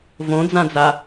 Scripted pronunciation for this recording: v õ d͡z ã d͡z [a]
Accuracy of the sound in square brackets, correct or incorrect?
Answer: correct